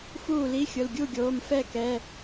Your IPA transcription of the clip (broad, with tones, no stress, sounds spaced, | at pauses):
f uː˥˩ l i˧˥˧ xʲ ʊ˩˧˩ l ɡʲ u˥˩ ɡʲ oː˩˧˩ m f ɛ˥˩ k ɛ˩˧˩